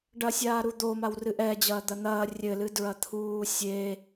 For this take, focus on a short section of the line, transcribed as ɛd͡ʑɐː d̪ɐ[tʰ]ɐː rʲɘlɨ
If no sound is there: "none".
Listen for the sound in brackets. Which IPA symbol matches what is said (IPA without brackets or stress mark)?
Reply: n̪